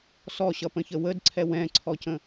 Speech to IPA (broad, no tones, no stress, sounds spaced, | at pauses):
s ɔ ɕ ʌ p ə̃ ç ə w ə d ǀʰ ɛ w ɛ̃ ǀʰ ɔ c ə̃